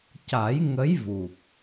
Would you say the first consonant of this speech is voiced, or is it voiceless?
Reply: voiceless